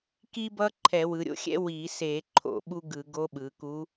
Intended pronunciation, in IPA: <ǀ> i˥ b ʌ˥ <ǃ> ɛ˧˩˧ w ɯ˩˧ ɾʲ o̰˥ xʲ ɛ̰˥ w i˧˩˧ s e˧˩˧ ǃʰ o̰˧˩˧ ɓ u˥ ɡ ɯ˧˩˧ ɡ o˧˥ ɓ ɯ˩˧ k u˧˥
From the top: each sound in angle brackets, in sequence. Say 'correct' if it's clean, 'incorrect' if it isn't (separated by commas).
incorrect, incorrect